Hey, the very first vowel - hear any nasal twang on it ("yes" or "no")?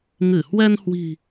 no